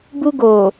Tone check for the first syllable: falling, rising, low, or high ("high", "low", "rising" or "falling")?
high